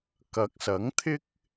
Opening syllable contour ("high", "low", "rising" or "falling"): rising